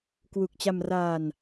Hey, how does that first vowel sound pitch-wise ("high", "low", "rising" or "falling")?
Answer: low